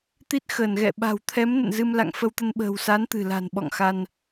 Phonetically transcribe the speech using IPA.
t̪ i˦˥ t̚ x əː˧˩ n ɣ ɛ̰˧˨ ɓ a̤˨˩ w t̪ʰ ɛ˨˦ m n ə̰˧˨ n z ɨ˧ m l a̰˧˨ ŋ f ə˧ w t̪ ə˧ n ɓ ə̤ː˨˩ w s a˨˦ n t̪ ɨ̤˨˩ l a̤˨˩ n ɓ ɔ̰˧˨ ŋ x a˧ n

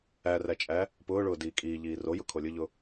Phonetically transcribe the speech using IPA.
æ r æ t͡ʃʼ æ | p ʊː ɭ ʊː d iː kʼ iː ʎ iː r o j ʊ kʰ o lʲ ʊ ʎ ʊ

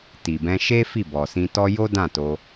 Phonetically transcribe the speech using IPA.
t i˨ b ɛ̃˧ ʃ e˦ f i˦˨ b ɔ˨ s ĩ˧ t ɔ˦ j o˦ d ã˦˨ t o˧

